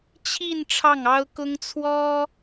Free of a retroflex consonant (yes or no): no